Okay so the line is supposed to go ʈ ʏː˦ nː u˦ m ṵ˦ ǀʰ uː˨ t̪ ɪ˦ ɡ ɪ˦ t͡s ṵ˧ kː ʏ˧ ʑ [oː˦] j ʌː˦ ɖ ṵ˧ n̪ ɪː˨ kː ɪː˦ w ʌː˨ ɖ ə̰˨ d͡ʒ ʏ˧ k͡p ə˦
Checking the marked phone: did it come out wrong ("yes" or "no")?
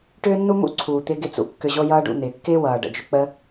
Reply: yes